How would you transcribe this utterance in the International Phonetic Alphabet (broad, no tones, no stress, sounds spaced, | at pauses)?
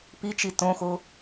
p i t͡ʃ i t õ x o